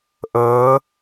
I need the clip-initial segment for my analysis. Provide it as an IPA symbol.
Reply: ʔ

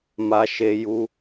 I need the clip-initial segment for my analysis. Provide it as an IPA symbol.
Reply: m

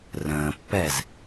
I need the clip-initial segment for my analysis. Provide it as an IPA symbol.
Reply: r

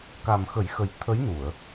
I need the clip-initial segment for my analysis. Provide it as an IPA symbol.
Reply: k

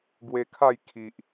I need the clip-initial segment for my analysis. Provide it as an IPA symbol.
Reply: ɡ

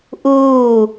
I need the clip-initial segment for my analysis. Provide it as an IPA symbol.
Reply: ʔ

